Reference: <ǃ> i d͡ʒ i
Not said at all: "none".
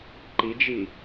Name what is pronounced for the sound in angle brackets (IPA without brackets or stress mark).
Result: ǃ